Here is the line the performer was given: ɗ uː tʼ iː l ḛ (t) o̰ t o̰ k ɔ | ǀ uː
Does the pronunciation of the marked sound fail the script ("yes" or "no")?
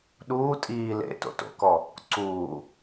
no